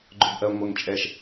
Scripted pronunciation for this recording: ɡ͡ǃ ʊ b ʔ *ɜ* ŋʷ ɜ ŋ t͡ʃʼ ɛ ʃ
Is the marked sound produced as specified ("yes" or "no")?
yes